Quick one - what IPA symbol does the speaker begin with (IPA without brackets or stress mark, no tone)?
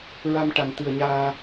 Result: ɹ